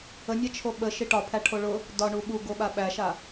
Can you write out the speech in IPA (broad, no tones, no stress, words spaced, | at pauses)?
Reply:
ənʲa t͡ʃʰoɓə ʃiʈɒpʰæʈʰo ɭʊ | dɒɳu ɓuɡoɓa ɓæʃa